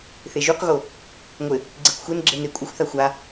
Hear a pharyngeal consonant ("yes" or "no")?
no